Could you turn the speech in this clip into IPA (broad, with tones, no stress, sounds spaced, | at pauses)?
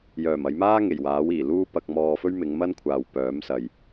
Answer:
j œː˨˩ m ɐ˨˧ j m aː˥ ŋ e˨˩ j w aː˨˥ w iː˨˩ l uː˥ p ɐ˧ k̚ m ɔː˧ f ɵ˥ ɥ m ɪ˨˧ ŋ m ɐ˥ n kʷʰ aː˨ w p œː˨˥ m s ɐ˨ j